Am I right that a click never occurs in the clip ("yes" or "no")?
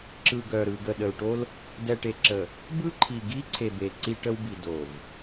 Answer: no